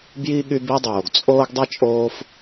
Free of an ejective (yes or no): no